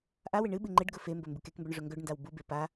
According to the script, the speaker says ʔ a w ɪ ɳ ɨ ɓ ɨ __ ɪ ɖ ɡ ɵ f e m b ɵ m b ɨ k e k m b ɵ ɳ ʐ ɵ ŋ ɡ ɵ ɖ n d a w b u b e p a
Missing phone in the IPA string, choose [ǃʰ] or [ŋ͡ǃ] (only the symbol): ŋ͡ǃ